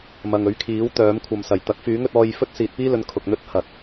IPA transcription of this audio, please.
mɐ˨ŋɵ˨˥ɥkʰiː˨˥w t̪œː˨˥m kʷʰɐ˨msɐ˨˩j t̪ɐ˨˥k̚fyː˨˥ŋ ɵ˧t̚ɔː˧j fɵ˥t̚siː˨t̚piː˥lɵ˨˧n kʰʊ˨k̚n̪ɵ˥t̚hɐ˨t̚

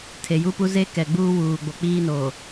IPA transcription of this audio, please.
tʰe˨ju˦pu˦ ze˦ kɛ˨ɡ͡buː˦ wuː˨ɡ͡bo˨k͡piː˦ noː˨

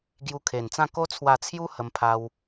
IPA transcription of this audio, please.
ɡju˧kʰe˨˩nt͡sã˥˧ ko˦t͡sʰwa˧t͡sʰju˦ hə˧mpʰa˧w

